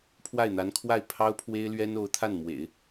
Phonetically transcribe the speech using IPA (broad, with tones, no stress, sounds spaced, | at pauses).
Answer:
pʰ w a˥˩ ɪ̯ n̪ a˧˥ n kʰ w a˥˩ ɪ̯ pʰ ɑ˥ ʊ̯ pʰ w e˥ ɪ̯ l ɥ ɛ˥ n o˧˥ ʊ̯ t̪ʰ a˥˩ n m w ḛ˨˩˦ ɪ̯